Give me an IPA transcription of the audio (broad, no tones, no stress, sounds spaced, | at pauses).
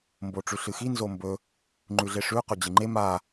m b o ʈ͡ʂ ʉ ɬ ɨ x i n z o m b ɵ | ŋ͡ǃ ʉ ɮ e ʂ ʉ q ɵ d͡ʑ ɨ ŋ͡ǃ e m a